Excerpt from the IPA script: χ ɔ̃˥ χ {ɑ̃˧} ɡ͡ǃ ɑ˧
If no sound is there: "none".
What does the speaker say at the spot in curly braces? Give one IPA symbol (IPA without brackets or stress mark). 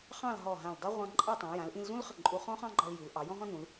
ɑ̃˥